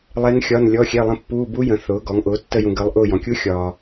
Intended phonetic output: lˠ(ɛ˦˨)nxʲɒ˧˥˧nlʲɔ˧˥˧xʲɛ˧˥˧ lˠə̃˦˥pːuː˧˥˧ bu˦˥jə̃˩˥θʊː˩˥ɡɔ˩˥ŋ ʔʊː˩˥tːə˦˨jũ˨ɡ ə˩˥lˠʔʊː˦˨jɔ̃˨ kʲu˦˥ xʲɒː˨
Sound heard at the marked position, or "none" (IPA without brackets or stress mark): ɛ˦˥